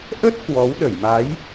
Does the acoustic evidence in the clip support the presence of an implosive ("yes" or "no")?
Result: yes